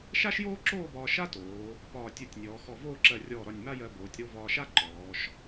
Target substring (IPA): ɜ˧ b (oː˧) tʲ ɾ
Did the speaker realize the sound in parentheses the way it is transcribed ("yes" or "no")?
no